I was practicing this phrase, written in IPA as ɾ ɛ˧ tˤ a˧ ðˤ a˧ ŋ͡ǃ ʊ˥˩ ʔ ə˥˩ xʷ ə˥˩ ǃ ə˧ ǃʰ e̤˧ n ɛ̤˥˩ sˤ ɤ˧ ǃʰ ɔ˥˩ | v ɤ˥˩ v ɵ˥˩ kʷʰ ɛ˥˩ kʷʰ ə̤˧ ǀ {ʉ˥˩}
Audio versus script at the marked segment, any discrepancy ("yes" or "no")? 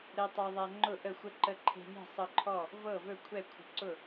yes